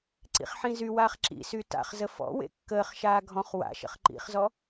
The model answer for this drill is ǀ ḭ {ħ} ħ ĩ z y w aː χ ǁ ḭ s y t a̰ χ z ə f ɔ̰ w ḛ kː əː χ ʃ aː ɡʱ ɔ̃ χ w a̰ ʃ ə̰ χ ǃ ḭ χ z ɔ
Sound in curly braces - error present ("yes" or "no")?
yes